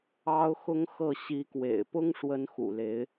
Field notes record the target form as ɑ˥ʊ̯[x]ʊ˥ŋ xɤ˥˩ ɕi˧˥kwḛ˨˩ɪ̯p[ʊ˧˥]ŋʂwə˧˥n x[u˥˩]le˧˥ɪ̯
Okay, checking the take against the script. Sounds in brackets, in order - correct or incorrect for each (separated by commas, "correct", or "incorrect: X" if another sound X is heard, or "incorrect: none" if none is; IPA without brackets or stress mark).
correct, incorrect: ʊ˥, incorrect: ṵ˨˩